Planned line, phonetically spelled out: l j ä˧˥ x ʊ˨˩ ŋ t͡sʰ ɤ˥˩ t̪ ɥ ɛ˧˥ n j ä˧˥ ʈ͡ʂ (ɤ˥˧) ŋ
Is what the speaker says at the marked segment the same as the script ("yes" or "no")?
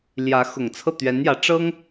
no